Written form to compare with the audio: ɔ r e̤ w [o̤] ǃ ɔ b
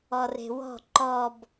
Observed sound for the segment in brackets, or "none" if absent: ɔ̤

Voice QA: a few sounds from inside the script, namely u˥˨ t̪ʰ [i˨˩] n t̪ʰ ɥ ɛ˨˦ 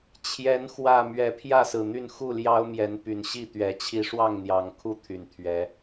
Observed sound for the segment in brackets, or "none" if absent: y˨˩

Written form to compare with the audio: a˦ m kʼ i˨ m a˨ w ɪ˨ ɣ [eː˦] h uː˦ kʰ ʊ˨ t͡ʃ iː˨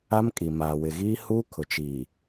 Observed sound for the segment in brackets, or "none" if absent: iː˦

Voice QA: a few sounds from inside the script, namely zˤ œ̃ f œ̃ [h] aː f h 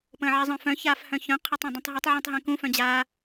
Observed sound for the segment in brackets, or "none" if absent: ç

